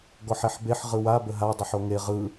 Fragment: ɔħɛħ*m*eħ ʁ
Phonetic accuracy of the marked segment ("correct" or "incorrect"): incorrect